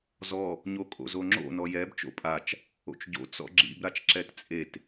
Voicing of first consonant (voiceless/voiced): voiced